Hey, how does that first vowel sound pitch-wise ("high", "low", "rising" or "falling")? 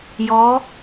rising